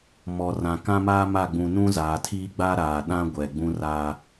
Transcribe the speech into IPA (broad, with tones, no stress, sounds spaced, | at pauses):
m ɔ˨ r ã˨ k ã˦ m aː˦ m a˦˨ ɡ͡b ũ˨ n ũ˦ z aː˨ tʰ iː˦ ɡ͡b a˦ ɾ aː˨ ɗ ã˦ ɡʷ ɛ˨ ɡ͡b ũ˦ r a˦